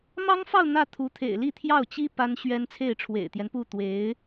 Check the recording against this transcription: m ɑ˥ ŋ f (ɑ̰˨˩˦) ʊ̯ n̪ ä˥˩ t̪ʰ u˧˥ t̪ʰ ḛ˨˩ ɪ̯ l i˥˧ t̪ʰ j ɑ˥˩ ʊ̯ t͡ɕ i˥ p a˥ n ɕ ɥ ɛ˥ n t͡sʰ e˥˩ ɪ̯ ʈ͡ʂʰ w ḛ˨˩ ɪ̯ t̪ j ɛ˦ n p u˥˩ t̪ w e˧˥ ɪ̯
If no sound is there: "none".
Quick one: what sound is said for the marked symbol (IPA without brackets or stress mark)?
ɑ˥˧